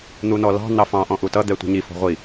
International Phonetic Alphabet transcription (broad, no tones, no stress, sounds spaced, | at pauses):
n̪ u n ɔ l ɑ̤ n̪ ɑ f ɑ̃ ʔ ɔ̃ ʔ u t ʌ d̪ ɛ tʷ i̤ ɲ i f ɔ̤ ʁʷ i